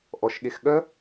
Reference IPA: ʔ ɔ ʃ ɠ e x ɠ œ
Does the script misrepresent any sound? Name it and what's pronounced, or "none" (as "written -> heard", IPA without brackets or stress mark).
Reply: none